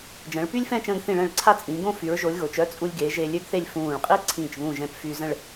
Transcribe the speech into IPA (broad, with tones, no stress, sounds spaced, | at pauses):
d͡ʒ ə̃ː˩˧ ɭ p y˥ lʲ f ɛ̃˥˧ t͡ʃ ə̃ː˧ ɡ θ ĩ˧˩ ɭ ɛ̃˧˩ ɭ ǀʰ a˥˧ t͡sʼ ĩː˩˧ ɡ õ˥˧ f y˩˧ ɹ ʒ o˩˧ lʲ ɣ o˩˧ t͡ʃ œ˥ t͡sʼ u˧ lʲ ɡ eː˩˧ ʒ e˧ lʲ ø˥ ɡ θ e˥˧ lʲ f ũː˧˩ ɭ qʼ iː˥ ǀʰ ĩː˧˩ t͡ʃ β ũ˧˩ ʒ ɛ̃˧ p f y˧ z ə̃˥˧ ɭ